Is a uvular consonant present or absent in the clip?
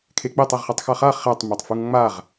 present